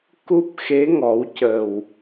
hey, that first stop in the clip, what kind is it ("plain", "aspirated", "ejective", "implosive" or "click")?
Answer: plain